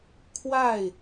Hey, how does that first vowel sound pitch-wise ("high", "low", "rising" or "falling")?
falling